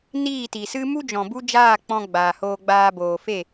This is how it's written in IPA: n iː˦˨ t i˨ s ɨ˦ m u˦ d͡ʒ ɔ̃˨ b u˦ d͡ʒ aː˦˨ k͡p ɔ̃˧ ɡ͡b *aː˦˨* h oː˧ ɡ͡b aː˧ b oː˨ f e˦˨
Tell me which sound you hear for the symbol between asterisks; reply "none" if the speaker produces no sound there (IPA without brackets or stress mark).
aː˨